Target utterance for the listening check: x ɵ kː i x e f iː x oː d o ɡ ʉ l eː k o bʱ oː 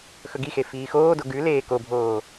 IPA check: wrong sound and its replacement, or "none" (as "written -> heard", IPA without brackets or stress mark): kː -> ɡ